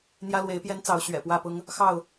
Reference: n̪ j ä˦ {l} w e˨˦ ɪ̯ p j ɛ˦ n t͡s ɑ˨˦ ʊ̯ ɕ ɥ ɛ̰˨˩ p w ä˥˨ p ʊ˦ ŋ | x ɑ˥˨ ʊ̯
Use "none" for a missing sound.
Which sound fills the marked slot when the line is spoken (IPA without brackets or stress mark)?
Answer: l